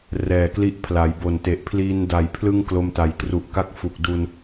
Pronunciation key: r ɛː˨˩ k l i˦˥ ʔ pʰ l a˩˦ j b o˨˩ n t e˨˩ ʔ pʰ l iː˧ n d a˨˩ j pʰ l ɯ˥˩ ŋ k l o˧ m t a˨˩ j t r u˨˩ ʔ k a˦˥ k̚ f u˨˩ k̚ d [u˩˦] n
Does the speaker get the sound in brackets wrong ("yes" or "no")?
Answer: yes